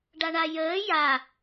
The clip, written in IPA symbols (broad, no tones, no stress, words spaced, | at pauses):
ɖaɳajəː ja